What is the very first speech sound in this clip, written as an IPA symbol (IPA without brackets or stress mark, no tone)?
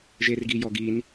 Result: ʒ